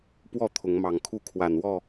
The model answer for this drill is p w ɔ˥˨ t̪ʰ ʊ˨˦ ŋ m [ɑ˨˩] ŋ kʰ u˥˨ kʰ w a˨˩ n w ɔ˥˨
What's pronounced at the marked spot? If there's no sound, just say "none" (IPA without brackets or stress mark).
ɑ˨˩